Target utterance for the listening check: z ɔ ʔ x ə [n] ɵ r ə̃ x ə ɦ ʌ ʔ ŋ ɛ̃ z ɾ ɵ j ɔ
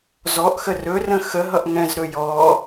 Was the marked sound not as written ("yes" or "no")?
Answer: yes